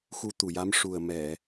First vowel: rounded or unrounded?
rounded